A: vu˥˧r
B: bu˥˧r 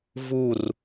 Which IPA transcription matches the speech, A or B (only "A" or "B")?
A